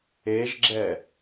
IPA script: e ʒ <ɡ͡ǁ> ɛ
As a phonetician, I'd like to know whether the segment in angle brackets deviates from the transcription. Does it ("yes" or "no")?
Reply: no